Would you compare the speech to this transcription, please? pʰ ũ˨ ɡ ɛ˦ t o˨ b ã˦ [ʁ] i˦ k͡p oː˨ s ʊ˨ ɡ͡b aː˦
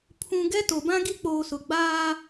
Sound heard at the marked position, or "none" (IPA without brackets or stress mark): ɡ